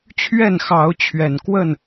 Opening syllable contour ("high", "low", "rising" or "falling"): falling